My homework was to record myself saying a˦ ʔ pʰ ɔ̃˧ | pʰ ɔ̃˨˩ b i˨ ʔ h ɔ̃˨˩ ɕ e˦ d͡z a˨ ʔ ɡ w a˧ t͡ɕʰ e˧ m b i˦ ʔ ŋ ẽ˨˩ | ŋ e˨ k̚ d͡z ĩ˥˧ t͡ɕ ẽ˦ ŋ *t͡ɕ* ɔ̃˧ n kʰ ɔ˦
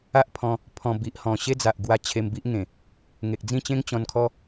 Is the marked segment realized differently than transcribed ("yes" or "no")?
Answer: no